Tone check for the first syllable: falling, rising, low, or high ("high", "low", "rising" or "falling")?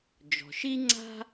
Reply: low